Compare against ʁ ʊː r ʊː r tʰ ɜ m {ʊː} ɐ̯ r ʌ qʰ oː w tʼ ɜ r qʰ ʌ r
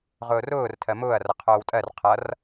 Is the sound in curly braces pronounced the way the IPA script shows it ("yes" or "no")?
yes